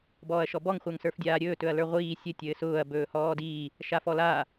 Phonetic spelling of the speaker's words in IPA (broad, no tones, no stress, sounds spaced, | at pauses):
b ɔː ɐ̯ ʃ ɔ b ɔ ŋ χʷ ə˞ ŋ s ə˞ f dʲ aː ɾʲ ɵː t ɵ ɐ̯ l ə˞ ʁʷ iː sʲ ɘ tʲ ɘː s ʊː ɐ̯ b ɵː h ɔː d iː | ʃ a f ɔ l aː